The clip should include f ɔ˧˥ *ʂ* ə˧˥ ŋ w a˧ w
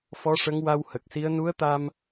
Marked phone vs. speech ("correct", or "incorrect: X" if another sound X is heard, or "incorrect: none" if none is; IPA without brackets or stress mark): correct